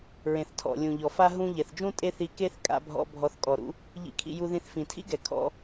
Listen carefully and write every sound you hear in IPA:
ɹẽ˨θtʰɔ̰˨lʲũ˨ʎɔ˨ fa˦ ɦũ˧ ʎɛ˨θd͡ʒũ˦ tʼe˦θi˧ke˦θ kʼa̰˧bʱɔ̰˧ bʱɔ˧θkʼɔ˨ɾṵ˦ | ʎḭ˧kʰḭ˧ ju˧ðĩ˧θ fĩ˨tʰḭ˦ɡɛ˨ kʰɔ̰˧

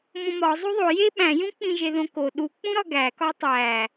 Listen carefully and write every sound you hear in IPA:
mõmɒ zˤuðˤo je ɓæ̃jũ k͡pĩʒeðõko ɗu k͡pũɾɒɡæ kɒtˤæ

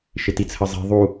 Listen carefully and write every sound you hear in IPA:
ʃɪtit͡sʰəzˤi̤ ðˤu

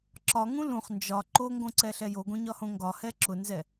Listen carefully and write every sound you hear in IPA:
ǁɒŋũ lũχ nd͡ʒɒ ǃoŋɡõǀɛɬɛ joɡõɲɒhõ ŋɡɒhɛ ǁʊnzɛ

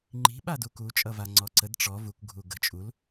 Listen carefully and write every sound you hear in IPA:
ŋ͡ǃi̤ ɓaduku t͡ʃʼʌvaŋ͡ǀɔǀəd ʈ͡ʂɔ vuk ɡʱuɡə̤ t͡ʃʼul

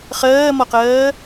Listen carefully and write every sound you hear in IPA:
χɜːmɔqɜː

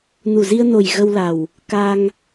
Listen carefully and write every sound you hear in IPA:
nu˨˩zi˧ə̯no˨˩j ɣə˧wla˨˩w | ka˧ŋ

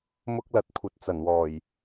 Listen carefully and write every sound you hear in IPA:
mʊ˥k̚lɐ˧t̚ kʷʰɐ˨˥t̚ t͡sɐ˨˩n wɔː˨˩j

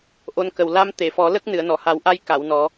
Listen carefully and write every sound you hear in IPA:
ʔo˧˥nkə˨˩w la˧m t̪e˨˩˨fɔ˨˩˦ lə˦˥k̚ nɨ˨˩˨ə̯nɔ˨˩˨ha˨˩˦wʔa˧j ka˨˩˨w nɔ˨˩˦

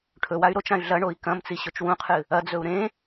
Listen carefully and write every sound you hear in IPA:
ʈʰɵway̯ ɾot͡ʃãy̯ ɮɐ ɳoi̯kɐ̃mt͡si ɕɵt͡ʃwũqʰɨ | ɐd͡zɵu̯ ɾẽ

